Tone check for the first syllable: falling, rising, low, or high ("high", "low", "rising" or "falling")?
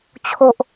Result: high